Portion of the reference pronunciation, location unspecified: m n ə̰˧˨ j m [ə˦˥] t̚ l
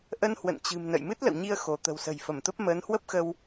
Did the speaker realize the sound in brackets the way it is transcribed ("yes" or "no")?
no